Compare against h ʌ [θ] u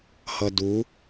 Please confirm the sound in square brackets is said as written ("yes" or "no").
no